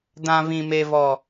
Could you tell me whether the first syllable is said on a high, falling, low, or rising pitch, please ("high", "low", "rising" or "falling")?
high